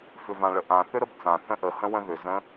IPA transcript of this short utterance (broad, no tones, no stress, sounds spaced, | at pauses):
f ʏ v ã ɭ ə ʔ ã θ ʏ ɾ ə b t͡s ã θ ə̃ ʔ ə h ə̃ w ə̃ ð ʏ z ə̃